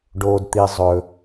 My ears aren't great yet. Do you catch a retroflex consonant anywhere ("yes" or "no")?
yes